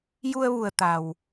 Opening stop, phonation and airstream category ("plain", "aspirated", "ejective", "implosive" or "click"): plain